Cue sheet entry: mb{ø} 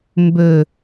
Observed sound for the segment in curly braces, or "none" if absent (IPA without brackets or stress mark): ø